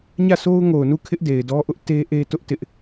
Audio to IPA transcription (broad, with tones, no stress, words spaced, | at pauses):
ɲä˦˨sʰo˦ʊ̯ŋo˨ʊ̯nu˦˨ kʰɪ˦ʔde˨ɪ̯dɔ˦ʔʊ˦ʔ te˦ʔe˦ tʊ˦ʔtɪ˦ʔ